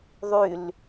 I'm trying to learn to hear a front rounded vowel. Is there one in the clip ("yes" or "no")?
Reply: yes